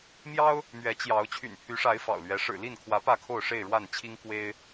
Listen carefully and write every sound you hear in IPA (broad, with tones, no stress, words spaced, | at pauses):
mjɑ˦ʊ̯ | mɥɛ˨˦t͡ɕjɑ˨˦ʊ̯ t͡ɕʰy̰˨˩npʰy˨˦ʂa˨˦ɪ̯ fɑ̰˨˩ʊ̯lɥɛ˨˦ ʂɻ̩˨˩li˥˨nkʰwä˨˦ pä˥˨kʰo˥˨ʊ̯ʂe˥˨ɪ̯ ɻwa˥˨nt͡ɕʰi˦ŋ kwe˦ɪ̯